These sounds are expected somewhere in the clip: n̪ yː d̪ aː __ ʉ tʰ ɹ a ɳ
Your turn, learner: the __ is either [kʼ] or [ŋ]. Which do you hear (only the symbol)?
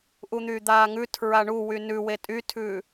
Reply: ŋ